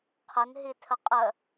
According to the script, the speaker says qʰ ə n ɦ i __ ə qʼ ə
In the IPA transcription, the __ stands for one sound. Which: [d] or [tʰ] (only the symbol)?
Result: tʰ